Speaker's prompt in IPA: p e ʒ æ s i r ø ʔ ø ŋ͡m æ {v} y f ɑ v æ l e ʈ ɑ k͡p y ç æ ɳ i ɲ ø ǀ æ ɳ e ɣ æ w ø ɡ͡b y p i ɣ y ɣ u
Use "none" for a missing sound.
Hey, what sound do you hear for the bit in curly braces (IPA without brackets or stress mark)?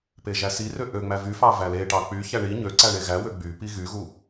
v